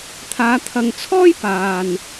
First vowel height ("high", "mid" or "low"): low